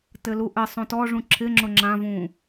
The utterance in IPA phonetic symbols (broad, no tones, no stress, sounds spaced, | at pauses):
t ɘ l u ʔ ɘ sˤ õ t ɔ ʐ ũ ǁʰ ɪ ŋ͡ǁ ʊ ŋ͡ǁ ã v ũ